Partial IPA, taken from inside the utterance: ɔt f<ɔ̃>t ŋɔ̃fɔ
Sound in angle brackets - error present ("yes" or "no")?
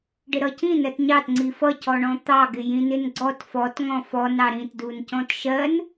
yes